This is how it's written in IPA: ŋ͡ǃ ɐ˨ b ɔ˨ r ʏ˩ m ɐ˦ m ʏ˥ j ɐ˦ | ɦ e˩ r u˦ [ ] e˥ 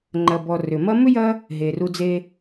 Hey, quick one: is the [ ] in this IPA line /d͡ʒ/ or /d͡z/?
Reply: d͡z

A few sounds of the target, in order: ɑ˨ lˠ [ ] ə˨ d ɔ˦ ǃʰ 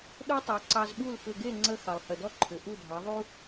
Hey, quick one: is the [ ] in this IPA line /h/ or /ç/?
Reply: h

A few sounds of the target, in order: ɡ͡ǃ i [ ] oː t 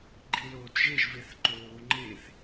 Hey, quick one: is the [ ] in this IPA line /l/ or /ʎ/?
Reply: l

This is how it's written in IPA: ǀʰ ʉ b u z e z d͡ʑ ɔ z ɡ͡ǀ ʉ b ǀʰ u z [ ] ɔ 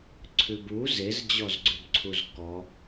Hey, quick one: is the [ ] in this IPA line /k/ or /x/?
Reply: k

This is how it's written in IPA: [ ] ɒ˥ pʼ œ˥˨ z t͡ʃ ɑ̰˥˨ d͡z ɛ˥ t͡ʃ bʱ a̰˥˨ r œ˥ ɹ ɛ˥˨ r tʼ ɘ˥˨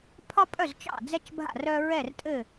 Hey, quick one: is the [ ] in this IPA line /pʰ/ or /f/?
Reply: pʰ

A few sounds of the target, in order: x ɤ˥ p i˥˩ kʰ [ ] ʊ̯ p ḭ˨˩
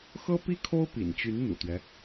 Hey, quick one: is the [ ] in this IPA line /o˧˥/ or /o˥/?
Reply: o˥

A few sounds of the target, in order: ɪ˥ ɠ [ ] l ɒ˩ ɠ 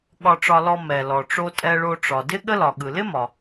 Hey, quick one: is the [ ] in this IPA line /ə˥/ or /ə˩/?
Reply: ə˥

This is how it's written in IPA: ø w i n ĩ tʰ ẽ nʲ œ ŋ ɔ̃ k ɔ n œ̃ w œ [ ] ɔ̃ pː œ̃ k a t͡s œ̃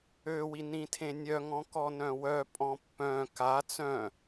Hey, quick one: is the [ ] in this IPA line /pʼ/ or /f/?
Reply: pʼ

